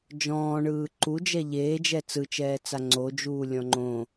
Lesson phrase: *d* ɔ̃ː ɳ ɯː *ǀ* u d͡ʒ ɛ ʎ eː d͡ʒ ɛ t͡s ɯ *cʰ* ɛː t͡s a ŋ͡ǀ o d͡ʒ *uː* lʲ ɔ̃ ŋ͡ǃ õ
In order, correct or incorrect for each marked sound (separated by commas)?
incorrect, incorrect, incorrect, correct